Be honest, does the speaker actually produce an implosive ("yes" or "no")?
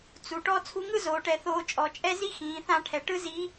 no